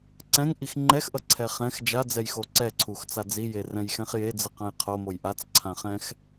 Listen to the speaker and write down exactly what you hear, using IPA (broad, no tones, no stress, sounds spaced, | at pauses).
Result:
ǀ ɛ̃ ŋ ʔ i x ŋ͡ǃ ɛ x ʔ ʌ ǀʰ ɛ χ ɛ̃ x d͡ʒ a d͡z ɛ j x o ǀ ɛ ǀʰ u x t͡s a d͡z i j e r ɛ̃ j x ɛ̃ χ j e d͡z ɯ q ã j qʰ o m o j ʔ a t͡s ǀʰ ã χ ɛ̃ x